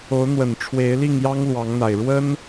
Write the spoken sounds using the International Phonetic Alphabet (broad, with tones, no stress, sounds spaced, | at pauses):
o˨˦ ʊ̯ n̪ w ə˨˩ n ʈ͡ʂʰ w e˨˦ ɪ̯ l i˥˨ ŋ j ɑ˦ ŋ l w ɑ˨˦ ŋ n̪ a˨˩ ɪ̯ ɻ w ə˦ n